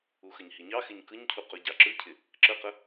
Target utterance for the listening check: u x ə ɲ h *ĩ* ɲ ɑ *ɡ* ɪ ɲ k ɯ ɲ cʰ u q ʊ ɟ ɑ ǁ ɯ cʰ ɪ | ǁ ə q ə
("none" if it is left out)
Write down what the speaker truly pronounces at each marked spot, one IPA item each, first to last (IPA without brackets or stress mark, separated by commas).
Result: i, x